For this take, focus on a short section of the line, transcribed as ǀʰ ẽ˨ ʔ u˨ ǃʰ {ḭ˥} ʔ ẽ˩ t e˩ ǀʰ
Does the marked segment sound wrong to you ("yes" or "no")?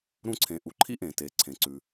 no